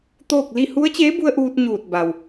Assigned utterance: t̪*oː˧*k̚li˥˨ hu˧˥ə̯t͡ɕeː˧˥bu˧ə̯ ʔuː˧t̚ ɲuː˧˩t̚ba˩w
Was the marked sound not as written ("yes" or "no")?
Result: yes